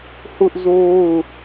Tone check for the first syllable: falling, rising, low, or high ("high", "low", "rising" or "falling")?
high